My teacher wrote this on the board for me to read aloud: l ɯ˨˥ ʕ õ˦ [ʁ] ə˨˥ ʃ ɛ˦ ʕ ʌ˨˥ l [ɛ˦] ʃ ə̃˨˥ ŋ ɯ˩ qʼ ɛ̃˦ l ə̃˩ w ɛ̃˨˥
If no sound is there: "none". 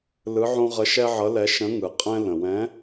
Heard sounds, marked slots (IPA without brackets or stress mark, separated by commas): ʁ, ɛ˨˥